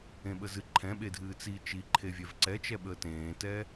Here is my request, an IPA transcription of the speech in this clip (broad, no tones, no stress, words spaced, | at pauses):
ẽɓəzɨ ǃʰɛ̃ɓedʱɨː t͡si t͡ʃiǃʰe vʲɛvǀɛt͡ʃɛ ɓəːtẽːtɛ